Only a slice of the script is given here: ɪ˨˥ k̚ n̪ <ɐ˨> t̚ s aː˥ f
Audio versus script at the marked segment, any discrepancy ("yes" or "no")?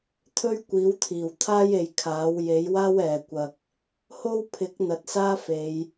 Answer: no